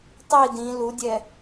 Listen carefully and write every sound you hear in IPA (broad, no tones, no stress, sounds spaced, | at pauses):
tˤ i d ĩ l u dʲ ɛ